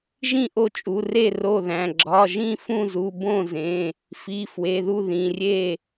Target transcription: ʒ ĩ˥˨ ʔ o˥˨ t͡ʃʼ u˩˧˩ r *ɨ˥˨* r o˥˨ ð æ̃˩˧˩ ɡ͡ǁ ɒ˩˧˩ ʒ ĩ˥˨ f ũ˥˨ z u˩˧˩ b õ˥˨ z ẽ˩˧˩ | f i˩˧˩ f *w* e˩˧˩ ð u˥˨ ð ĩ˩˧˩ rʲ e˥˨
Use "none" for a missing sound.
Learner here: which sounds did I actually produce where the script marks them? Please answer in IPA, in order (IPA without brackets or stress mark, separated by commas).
e˥˨, w